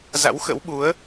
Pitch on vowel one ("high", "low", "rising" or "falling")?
rising